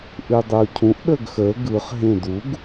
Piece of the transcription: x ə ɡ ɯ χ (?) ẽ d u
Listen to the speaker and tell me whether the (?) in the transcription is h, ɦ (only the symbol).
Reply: ɦ